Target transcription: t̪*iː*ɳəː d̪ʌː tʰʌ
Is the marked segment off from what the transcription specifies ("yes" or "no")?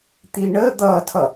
no